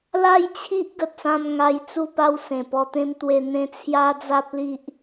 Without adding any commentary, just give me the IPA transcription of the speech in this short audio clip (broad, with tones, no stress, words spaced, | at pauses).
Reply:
la˥˧jt͡ɕʰi˦ʔ ɡə˨t̚sã˧m ŋa˧jt͡su˥˧pa˦w sẽ˨˩pɔ˧t̪ẽ˦m t̪we˧n̪ẽ˦ t͡sʰja˦d͡za˦p̚li˦ʔ